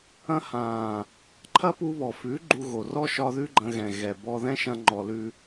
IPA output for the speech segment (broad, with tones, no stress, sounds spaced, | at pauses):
ɐ̃˧ h ã˨ | ǃʰ ɐ˦ p u˧ β ɔ˨ f ʉ˨˦ ɡ͡ǃ u˧ ɣ o˨ r ɔ˦ ʃ ɒ˧ ð ʉ˦ ɡ͡ǃ ɐ̃˧ ɣ ɛ̃˨ ɣ ɛ˨ b ɔ˧ ð ɛ̃˦ ʃ ɐ̃˧ ŋ͡ǃ ɔ˨ l ʉ˧